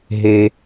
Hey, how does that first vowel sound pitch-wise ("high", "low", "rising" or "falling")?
high